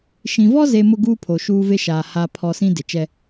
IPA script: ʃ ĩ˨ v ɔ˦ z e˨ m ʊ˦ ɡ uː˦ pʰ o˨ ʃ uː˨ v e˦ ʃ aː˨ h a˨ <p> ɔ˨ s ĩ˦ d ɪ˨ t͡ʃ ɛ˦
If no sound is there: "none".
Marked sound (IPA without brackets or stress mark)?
pʰ